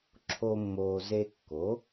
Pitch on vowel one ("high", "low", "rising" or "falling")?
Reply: high